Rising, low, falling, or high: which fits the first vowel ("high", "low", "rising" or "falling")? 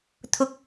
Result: low